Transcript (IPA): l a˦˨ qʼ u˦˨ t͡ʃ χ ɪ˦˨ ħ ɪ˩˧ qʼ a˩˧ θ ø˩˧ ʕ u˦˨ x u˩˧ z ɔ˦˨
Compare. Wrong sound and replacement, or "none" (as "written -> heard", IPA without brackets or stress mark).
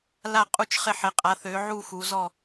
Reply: none